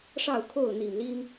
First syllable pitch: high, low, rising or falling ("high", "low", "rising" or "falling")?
falling